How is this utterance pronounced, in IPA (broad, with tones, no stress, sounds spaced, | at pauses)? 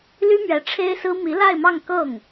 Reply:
l y˥ m ɥ ɛ˧˥ ʈ͡ʂʰ e˥ ɪ̯ s ɹ̩˥ m i˧˥ l a˥˧ ɪ̯ m ɑ˥˧ ŋ k ɤ˥˩ ŋ